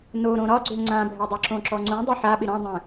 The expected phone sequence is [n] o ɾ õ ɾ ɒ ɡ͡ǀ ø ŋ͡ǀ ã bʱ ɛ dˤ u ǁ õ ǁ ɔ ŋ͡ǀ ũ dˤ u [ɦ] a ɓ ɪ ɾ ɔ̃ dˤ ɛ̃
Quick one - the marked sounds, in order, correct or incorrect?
correct, incorrect

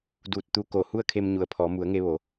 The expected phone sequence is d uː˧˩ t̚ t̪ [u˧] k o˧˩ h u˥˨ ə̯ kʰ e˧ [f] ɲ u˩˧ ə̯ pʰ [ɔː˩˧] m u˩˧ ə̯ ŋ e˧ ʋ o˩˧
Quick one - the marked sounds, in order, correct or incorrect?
correct, incorrect, correct

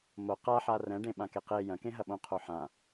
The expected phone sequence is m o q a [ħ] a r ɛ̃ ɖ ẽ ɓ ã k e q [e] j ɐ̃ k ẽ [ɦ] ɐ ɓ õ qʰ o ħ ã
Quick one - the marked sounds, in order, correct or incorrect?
correct, correct, correct

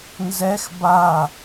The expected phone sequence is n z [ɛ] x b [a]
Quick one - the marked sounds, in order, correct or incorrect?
correct, correct

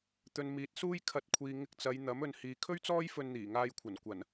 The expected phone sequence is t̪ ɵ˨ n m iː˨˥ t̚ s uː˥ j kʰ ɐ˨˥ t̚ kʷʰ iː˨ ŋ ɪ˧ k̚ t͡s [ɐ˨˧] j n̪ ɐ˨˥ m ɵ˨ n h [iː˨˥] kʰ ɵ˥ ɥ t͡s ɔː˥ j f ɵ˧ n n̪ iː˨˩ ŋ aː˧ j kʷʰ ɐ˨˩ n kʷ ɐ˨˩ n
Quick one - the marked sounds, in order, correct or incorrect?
correct, incorrect

